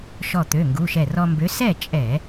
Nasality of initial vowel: oral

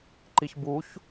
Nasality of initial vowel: oral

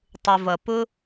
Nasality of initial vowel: oral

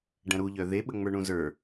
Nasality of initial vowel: nasal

